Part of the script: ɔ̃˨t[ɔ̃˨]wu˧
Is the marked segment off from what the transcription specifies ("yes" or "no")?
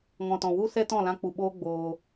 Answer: no